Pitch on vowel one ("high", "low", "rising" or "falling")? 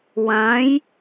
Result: rising